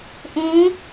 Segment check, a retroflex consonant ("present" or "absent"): absent